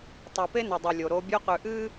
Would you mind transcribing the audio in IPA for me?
tˤe˨pe˦nɵ˨ dˤi˨ lʲo˨ɾo˦ bʲo˦qʉ˨ʔɨː˦

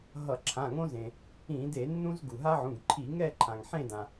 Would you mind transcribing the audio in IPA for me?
ɦʌ˧˩˧ǁʰã˩˧˩ŋõ˦zẽ˩ | ĩ˧˩˧de˧˩˧nːũ˦z ɡu˩ɦa˦ʕũ˩˧˩ɡǃʰi˧˩˧ ŋɛ˦˨ǃʰã˩ŋ ħẽ˦˨dã˩

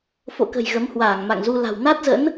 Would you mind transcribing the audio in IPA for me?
fo̰˧˨ kə̤˨˩j ɣə˨˦mhwaː˧˩ŋma̰˧˨ŋzu˧ la̤˨˩w na˦˥t̚zə̰˧˥n

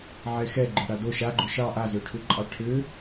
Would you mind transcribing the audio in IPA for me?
ʕɛxɛ ɡ͡ǃʏɽado ʃaɡ͡ǃʏ ʃɑ ʔazøʈʰʏ ǃʼɑʈʰʏ

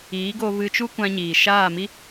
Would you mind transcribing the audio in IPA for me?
iː˨˦ɡo˧vɨ˧t͡ʃu˦ kʷã˦ɲiː˨ ʃaː˦˨mi˦

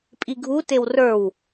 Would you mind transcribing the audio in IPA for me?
pʼiɡʱu tewrə˞w

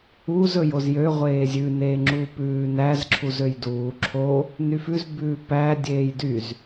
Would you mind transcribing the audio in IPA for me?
uz ɵjozjø ʁʷeːzʲʉ neːŋ͡ǁuːpʉːnæz ǁʰuzøjduː ǁʰo | nyfʉz bʉːpæ dʲeːjdyz

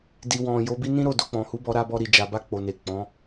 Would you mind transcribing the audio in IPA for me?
di˨ wɔ̃˨ jo˨˦bi˦ nĩ˦ ɾo˦˨do˧k͡pɔ̃˨hu˨˦ bɔ˧ɾa˧ bɔ˧ɾi˨d͡ʒa˨ba˧ k͡po˨ne˨ k͡pɔ̃˨˦

